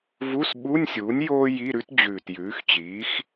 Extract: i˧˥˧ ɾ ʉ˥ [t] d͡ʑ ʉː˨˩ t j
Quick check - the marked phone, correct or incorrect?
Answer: correct